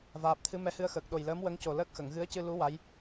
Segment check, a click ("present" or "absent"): absent